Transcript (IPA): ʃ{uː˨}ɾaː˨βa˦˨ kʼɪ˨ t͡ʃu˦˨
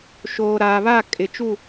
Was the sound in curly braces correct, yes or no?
no